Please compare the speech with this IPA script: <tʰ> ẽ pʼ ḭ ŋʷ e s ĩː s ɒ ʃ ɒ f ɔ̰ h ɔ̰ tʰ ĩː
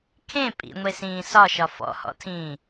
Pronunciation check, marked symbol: incorrect: kʰ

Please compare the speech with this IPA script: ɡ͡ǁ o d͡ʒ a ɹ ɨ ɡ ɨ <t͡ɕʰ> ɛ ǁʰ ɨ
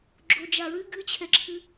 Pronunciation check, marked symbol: correct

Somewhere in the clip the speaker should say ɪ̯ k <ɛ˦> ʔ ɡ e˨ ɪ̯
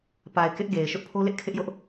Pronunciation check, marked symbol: incorrect: ɪ˦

